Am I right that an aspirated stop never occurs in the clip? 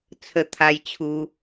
no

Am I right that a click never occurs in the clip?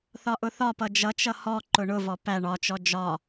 no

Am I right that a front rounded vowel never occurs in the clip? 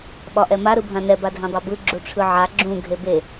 yes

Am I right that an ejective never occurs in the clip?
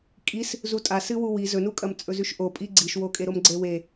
no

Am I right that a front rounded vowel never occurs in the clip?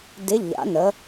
yes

